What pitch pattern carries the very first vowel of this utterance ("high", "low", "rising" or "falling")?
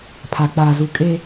low